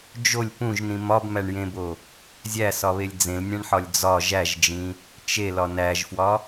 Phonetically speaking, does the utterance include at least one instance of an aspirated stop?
no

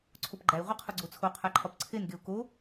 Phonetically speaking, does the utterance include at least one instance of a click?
yes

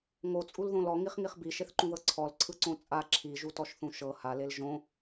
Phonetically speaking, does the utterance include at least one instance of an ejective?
yes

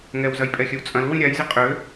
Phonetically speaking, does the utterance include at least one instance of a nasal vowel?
yes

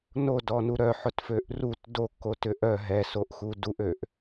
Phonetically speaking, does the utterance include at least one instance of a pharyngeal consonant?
yes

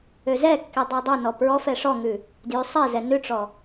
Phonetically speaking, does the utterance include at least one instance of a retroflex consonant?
yes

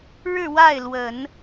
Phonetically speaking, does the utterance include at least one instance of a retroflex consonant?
yes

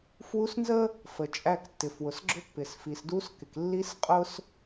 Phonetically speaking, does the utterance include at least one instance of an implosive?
no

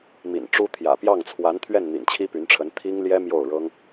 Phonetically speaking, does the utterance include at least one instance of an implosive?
no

